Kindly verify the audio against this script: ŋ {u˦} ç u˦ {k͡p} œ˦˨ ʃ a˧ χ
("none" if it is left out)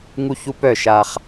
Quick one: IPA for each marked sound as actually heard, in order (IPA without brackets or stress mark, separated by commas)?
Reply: u˦, p